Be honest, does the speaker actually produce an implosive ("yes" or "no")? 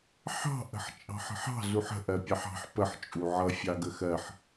no